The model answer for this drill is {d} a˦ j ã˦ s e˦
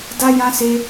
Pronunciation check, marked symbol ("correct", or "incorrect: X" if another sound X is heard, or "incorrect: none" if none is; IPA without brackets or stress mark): correct